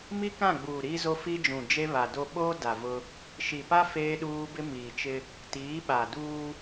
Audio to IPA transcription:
m i˦ k ã˦˨ ɡ͡b uː˨ ɾ iː˦ z o˦ f i˦ d͡ʒ ũ˨ d͡ʒ e˦ β a˨ d o˦ ɓ oː˦ d a˨ v ʊ˦ | ʃ i˨ p a˦ f eː˦ ɗ uː˦ b ɪ˦ m iː˨ t͡ʃ ɪ˦ | t iː˨˦ ɓ a˨ d uː˦

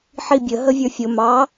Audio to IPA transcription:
ħ i bʲ ə ɦ ə vʲ ə˞ fʲ ʊ m ɑ

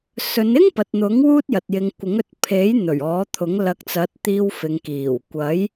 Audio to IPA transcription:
s ɵ˨˧ n ɪ˥ ŋ p ɐ˨ t̚ n̪ ʊ˨˥ ŋ w uː˥ t̚ j ɐ˨ t̚ j ɪ˨˧ ŋ kʷ ɪ˨˥ ŋ ɵ˨˥ t̚ pʰ e˨˥ j n̪ ɵ˨˩ ɥ ɔː˨˥ t̪ʰ ʊ˨˥ ŋ l ɐ˨˥ k̚ t͡s ɐ˨˥ t̚ t̪ iː˧ w f ɪ˨ ŋ k iː˨˩ w kʷ ɐ˨˥ j

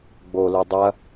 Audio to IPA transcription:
ɡ͡b o l u dˤ ɐ

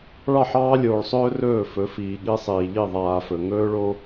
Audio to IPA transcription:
ɭ ɑ˦˨ ħ ɑː˦ lʲ oː˨ ɭ sˤ ɵː˦ r ɵː˦˨ f ɵ˨˦ f iː˨ ɠ i˦ sˤ iː˨ ʎ i˦˨ ðˤ aː˨ f ɵ˨ ŋ ɵː˦ ɭ o˦

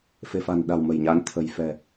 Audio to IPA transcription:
f e̤˨˩ f a̤˨˩ n ɗ a̤˨˩ w m ə̤˨˩ j ɲ a˨˦ n t̪ʰ ə̤˨˩ j f ɛ̤˨˩

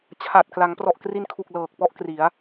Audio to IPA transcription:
t͡ɕʰ a˨˩ t̚ k l a˩˦ ŋ p r ɔ˨˩ ʔ k r i˧ n kʰ u˨˩ k̚ l ɤː˨˩ k̚ p ɔ˥˩ ʔ k r i˩˦ a̯

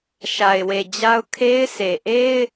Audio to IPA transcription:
ʃ a˨ ɪ̯ w e˨ d͡ʑ a˦ ʊ̯ kʰ e˦ ɪ̯ sʰ e˨ ʔ e˦ ɪ̯

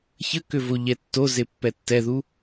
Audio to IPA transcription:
ç ə k ʏ v o ʎ ɛ tː o z e pː ɛ tː ɛ ð u

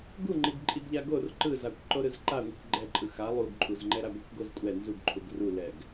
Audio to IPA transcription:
ɡ u ŋ͡ǃ i ɡ ǃʼ i ɡ ʎ a ɡ o r ǃ ɯ z a kʷ ǃ o ɾ ɯ z ǃ a ŋʷ i kʷ ɡ͡ǃ ɛ ǃʼ ɯ x a lˠ u ɡ ǃʼ u z ŋ͡ǃ ɛ ɾ a ɡʷ ɛ kʷ ɡ o z kʷʼ ɛ n z u ɡ ǃʰ u ɡ r u l ɛ ɡ

